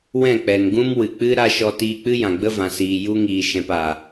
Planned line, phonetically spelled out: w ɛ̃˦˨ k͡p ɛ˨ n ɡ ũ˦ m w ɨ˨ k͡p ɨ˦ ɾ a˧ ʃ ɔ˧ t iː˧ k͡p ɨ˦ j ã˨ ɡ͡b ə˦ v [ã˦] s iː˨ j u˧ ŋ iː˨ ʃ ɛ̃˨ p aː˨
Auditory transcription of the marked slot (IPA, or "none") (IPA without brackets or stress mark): ã˨